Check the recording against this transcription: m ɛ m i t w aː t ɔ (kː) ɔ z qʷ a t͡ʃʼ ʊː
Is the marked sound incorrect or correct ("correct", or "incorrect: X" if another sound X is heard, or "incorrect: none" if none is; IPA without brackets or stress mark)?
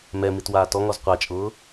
incorrect: ŋ